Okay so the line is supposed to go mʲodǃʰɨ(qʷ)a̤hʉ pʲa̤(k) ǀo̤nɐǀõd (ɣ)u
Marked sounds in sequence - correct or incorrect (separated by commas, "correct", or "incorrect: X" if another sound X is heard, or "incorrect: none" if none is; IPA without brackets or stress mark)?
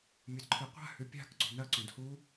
correct, correct, incorrect: h